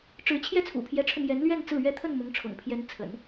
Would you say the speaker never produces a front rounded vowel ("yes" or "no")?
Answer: yes